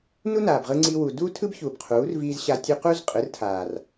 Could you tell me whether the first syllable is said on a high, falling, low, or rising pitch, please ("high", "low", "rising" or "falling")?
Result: high